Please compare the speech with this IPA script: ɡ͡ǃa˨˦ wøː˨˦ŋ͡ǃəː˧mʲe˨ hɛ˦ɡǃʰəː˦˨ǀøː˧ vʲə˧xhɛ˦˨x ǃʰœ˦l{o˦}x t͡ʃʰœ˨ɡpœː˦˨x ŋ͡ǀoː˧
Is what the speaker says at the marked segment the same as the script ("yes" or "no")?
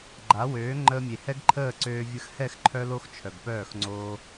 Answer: yes